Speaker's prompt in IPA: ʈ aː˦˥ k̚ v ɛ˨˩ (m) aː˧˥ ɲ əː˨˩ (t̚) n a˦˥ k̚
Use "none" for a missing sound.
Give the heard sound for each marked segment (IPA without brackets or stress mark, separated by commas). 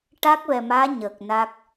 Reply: m, k̚